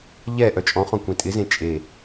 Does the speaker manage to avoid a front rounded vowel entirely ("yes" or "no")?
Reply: no